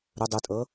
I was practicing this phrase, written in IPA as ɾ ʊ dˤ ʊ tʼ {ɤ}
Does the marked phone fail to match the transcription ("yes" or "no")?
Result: no